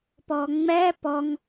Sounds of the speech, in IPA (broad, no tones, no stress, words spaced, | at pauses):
pɔŋ͡mɛ pɔŋ